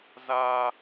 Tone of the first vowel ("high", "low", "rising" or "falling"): high